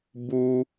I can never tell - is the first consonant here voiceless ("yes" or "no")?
no